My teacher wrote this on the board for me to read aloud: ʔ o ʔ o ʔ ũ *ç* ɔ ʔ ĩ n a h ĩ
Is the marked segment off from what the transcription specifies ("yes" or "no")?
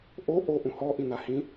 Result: yes